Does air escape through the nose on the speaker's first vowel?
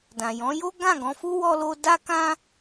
yes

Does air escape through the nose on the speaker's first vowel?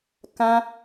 yes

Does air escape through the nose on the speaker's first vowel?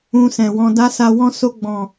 yes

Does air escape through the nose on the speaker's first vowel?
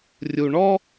no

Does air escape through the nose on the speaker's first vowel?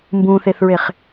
yes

